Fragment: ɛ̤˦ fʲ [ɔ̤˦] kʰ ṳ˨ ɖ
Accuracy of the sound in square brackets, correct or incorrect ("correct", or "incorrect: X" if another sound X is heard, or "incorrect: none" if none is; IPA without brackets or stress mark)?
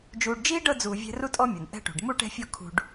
incorrect: ɔ˦